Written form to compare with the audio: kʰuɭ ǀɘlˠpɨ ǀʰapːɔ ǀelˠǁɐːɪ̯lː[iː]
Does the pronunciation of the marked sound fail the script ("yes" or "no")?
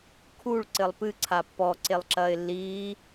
no